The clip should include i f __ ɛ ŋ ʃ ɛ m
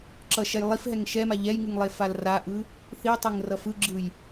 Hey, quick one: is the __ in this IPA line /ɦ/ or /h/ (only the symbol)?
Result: ɦ